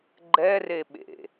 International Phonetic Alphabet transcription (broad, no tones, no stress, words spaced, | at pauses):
ɡ͡ǃɛreɓḛ